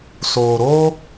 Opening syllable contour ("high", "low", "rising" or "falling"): low